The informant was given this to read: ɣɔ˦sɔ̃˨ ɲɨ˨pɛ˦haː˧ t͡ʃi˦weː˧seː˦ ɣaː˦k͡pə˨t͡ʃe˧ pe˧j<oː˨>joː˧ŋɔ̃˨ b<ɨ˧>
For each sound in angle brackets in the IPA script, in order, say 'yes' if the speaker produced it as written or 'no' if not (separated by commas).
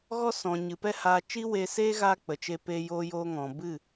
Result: no, no